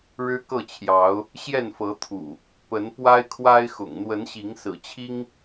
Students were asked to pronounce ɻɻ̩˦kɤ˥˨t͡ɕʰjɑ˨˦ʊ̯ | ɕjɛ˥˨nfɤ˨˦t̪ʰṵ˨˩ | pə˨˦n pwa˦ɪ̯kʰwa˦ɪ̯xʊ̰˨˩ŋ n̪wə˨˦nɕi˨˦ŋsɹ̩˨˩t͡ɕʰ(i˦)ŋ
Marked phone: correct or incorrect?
correct